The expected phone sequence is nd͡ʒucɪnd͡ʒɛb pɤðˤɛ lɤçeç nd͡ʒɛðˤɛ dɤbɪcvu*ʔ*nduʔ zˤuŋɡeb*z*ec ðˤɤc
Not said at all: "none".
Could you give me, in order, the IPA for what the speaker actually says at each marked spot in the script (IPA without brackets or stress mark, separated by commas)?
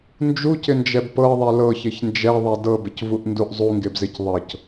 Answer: ʔ, z